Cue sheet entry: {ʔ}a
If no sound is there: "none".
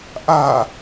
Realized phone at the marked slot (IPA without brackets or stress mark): ʔ